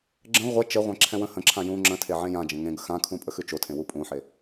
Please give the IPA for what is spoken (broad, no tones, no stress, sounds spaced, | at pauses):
ɡ͡ǁ ə̃ ʁʷ ɛ t͡ʃ ə ʁʷ ɛ̃ ǁʰ ɛ̃ w ə̃ h ə̃ ǁʰ ã j ũ ŋ͡ǁ ə̃ tʰ e ʕ ẽ j ã d͡ʒ ə̃ ŋ ẽ ɡ ə x ã kʰ ũ pʼ ə x ʉ t͡ʃ o tʰ ẽ w u pʼ ũ ħ e